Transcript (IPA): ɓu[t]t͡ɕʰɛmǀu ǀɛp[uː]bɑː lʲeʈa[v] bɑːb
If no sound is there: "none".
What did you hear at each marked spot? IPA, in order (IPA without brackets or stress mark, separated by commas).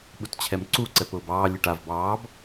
t, ʊː, v